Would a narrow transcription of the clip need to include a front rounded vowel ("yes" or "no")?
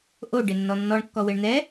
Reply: no